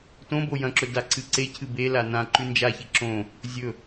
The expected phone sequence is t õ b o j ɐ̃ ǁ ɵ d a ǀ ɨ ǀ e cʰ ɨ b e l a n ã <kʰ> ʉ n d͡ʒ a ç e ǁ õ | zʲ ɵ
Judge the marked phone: incorrect: ǃ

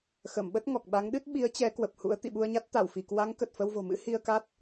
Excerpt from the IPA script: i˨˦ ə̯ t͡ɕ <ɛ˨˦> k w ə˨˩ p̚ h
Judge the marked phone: correct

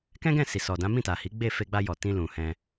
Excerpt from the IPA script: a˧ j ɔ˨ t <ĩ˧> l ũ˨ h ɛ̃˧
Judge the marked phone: correct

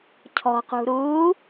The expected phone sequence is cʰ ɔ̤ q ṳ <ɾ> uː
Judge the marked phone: correct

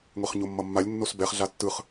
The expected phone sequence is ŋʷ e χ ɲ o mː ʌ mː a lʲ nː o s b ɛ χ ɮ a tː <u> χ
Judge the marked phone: incorrect: ɯ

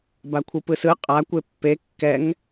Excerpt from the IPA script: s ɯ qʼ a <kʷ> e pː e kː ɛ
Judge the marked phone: correct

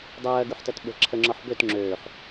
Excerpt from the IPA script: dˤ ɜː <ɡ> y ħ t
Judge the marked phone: correct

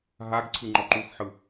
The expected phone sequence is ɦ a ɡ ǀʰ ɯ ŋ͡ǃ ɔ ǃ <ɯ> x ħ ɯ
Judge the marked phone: incorrect: u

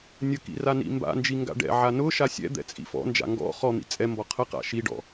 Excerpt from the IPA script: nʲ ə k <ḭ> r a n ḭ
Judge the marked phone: correct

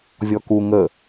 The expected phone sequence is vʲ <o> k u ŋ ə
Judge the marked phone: incorrect: ɔ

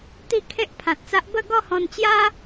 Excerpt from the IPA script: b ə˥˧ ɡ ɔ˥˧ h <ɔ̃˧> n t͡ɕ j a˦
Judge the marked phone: correct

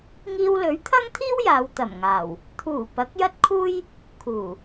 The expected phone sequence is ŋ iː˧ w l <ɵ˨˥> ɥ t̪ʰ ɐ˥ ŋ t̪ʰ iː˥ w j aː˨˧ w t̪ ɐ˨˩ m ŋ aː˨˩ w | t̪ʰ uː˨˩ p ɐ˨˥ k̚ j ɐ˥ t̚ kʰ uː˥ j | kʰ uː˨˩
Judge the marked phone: correct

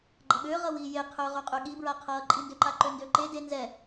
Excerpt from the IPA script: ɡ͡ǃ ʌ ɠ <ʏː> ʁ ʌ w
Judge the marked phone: correct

